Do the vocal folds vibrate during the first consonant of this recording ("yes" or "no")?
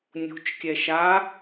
yes